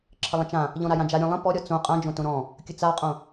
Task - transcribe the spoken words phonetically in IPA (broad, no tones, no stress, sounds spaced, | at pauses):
ǁʰ ə lˠ ə̃ t͡ʃ ã | ʎ ɔ̃ ɾ a j ã d͡ʒ a ɾʲ õ lˠ ə̃ p ɔ ɾʲ ɔ t͡s õ qʼ ã d͡ʒ õ t õ ɾ ɔ̃ | kʲ ə t͡s a qʼ õ